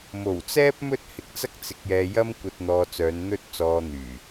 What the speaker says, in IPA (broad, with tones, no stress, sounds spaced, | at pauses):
m o˨˩ w t͡s ɛː˥ p̚ m ɵ˥ t̚ h ɪ˨ k̚ t͡s ɐ˥ k̚ t͡s ɪ˧ k̚ j ɛː˧ j ɐ˥ m kʷ ɐ˧ t̚ n̪ ɔː˧ t͡s œː˨˧ n n̪ ɵ˥ t̚ t͡s ɔː˧ n̪ yː˨˩